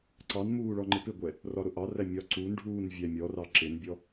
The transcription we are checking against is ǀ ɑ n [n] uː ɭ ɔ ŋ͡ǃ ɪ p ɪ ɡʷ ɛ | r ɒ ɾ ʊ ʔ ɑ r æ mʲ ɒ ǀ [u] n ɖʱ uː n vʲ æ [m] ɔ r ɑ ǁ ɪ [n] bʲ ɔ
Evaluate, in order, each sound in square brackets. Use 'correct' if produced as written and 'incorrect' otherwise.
incorrect: m, correct, incorrect: mʲ, correct

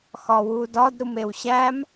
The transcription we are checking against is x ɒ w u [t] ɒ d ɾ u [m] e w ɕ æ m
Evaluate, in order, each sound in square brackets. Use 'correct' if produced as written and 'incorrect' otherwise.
incorrect: d, correct

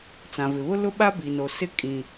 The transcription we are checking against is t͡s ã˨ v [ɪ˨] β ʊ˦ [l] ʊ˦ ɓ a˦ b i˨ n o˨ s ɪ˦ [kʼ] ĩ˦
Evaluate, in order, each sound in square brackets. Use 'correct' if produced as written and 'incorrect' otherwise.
correct, correct, correct

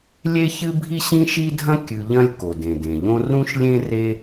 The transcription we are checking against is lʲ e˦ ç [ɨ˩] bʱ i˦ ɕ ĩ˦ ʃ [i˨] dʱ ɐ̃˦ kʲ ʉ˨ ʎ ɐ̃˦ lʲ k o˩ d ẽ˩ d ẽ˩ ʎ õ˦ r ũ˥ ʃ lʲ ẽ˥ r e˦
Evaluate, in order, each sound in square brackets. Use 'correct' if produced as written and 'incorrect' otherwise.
incorrect: ɨ˦, incorrect: i˦

